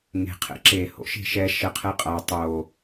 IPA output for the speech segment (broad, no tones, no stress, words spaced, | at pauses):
ŋe̤qʰɛ̰ ǁeho̰ʃe̤ ʃɛʃɜqʰɛ qʼa tˤo